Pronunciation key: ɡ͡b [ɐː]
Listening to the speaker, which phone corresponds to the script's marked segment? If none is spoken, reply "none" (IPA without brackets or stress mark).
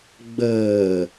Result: əː